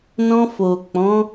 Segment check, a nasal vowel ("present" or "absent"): present